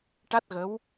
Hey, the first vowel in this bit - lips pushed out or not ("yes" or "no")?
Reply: no